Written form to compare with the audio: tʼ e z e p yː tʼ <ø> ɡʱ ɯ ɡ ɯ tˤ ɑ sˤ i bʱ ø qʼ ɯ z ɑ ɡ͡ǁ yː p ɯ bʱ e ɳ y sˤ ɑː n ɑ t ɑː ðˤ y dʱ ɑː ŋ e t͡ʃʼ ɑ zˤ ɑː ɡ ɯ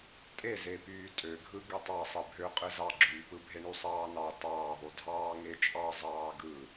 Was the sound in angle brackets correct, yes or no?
yes